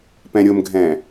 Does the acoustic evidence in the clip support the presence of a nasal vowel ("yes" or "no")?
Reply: yes